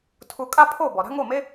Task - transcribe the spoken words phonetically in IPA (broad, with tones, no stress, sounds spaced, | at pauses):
tʰ u˧ kʼ a˥ pʰ o˥˩ b ɔ˩ ɾ a̤˥ ŋ o˥˩ m e˥